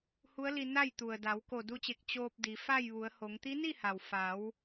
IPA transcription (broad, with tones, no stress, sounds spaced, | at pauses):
h u˧˥ ə̯ l i˧ n a˥˨ j t̪ u˩ ə̯ d a˩˧ w k o˧˩ d u˧ t͡ɕ e˧˩ k̚ t͡ɕ oː˧ p̚ d i˩˧ f a˥˨ j ʋ u˩˧ ə̯ h o˩˧ ŋ t̪ i˧˥ n i˥˨ h a˩ w f a˩˧ w